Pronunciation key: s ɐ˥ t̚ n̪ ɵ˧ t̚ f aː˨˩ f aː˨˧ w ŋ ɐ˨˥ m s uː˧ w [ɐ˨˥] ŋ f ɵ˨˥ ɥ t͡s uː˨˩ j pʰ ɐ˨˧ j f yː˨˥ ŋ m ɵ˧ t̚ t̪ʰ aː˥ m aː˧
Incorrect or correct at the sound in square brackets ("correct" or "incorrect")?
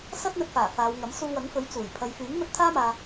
correct